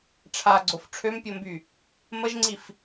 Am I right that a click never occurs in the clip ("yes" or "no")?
no